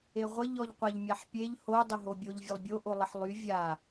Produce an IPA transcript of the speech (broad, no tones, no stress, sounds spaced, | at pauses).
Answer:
e ʁʷ ə ʎ ɔ ʎ qʷ a ʎ mʲ a ħ pʲ e ʎ h o dˤ ə ɦ o bʲ o ʎ vʲ ə lˠ bʲ o ʔ o lˠ ə ħ lˠ y vʲ a